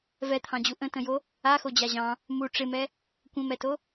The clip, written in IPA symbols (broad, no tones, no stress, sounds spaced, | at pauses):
v ɛ t̪ʰ ɑ̃ d͡ʑ u ʔ ə̃ t ə̃ j o | a x o d͡ʑ a ʑ ɑ̃ | m u ʈ͡ʂ ɪ m ɛ | kʷ ə̃ m ɛ t o